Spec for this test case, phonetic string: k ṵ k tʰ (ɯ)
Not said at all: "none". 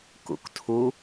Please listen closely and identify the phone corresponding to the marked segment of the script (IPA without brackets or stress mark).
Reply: u